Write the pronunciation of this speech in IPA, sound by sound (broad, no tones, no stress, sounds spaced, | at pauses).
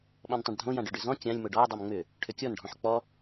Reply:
ɓ ɔ̃ n tˤ ã ɖ dʱ õ j ã ɖ ʏ ɖ ʏ z ɔ̃ kʲ ã lʲ m o ɖ ɔ j dˤ o m ŋ͡m ʏ | ʈʰ ʏ kʲ ɔ n ɖʱ ɔ̃ ħ k͡p ɔ